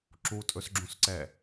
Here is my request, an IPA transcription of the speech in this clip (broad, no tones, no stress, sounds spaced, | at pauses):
ǁ u tʼ ɵ s ɡ͡ǁ ũ s ǀ ɛ